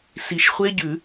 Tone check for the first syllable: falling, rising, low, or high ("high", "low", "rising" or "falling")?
low